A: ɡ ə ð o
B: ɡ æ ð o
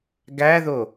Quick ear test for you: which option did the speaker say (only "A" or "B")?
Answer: B